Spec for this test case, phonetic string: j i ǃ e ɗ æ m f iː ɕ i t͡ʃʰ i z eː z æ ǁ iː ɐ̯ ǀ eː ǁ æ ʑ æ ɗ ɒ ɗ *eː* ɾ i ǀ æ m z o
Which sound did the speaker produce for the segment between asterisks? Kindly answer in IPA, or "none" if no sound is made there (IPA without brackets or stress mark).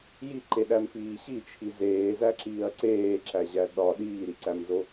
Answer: iː